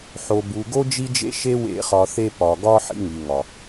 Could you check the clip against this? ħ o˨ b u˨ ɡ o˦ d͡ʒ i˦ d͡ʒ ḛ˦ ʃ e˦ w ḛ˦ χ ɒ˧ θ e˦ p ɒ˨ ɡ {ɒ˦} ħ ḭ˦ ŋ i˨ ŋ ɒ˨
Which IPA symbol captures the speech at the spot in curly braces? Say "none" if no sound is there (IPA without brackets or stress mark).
ɒ˦